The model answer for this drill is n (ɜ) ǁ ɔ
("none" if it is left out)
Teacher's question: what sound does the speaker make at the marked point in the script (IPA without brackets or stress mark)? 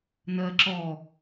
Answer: ɜ